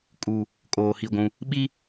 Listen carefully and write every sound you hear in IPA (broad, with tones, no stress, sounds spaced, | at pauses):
kʼ u˨ | kʼ oː˨ h i˦˨ ɡʷ ũ˦ | ɓ i˦